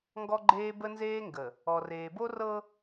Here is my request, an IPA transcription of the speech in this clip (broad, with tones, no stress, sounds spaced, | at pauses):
ŋ ɡ ɔ˦ ɡ͡ǃ eː˦ b ə˦ n z eː˦ ŋ ɡ ə˨ | ɔ˨ r eː˨ b o˦ r ɤ˦